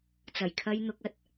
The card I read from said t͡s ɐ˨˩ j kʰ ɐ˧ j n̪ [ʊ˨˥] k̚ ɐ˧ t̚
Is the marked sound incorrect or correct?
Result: incorrect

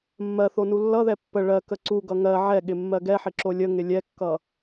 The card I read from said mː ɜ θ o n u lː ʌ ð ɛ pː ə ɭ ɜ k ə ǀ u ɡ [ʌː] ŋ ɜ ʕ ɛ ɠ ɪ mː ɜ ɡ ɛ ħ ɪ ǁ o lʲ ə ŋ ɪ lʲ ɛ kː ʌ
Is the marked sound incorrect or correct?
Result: incorrect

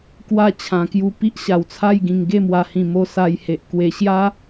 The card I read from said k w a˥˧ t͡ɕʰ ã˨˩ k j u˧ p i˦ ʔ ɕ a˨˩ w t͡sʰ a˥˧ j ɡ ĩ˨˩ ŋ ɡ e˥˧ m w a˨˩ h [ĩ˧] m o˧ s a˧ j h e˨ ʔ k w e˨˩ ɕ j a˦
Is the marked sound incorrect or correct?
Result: incorrect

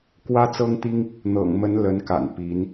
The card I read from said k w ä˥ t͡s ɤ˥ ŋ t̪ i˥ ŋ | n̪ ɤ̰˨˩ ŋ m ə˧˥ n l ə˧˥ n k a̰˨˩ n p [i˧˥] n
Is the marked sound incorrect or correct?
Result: correct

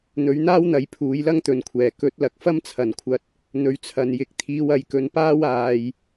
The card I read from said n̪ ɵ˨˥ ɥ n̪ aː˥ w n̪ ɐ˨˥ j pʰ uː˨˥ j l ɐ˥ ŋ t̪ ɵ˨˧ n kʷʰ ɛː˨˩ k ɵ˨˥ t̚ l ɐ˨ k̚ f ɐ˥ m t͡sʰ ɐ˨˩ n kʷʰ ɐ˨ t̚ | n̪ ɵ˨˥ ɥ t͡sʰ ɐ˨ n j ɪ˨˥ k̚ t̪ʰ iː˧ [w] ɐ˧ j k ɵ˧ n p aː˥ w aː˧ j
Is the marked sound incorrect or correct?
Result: correct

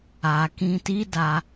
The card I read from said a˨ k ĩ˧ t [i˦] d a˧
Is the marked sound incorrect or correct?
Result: correct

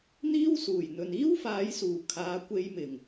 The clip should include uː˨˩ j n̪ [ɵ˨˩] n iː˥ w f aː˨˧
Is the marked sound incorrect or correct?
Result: incorrect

